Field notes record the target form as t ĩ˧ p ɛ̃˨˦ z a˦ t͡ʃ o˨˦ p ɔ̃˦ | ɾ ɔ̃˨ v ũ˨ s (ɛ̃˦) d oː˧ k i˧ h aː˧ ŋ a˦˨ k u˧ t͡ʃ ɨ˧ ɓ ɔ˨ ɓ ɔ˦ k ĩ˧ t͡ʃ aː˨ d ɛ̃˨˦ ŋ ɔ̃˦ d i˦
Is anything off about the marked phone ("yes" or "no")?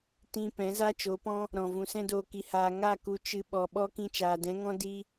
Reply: no